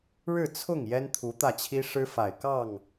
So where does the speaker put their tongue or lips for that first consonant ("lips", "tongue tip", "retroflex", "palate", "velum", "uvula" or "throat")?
retroflex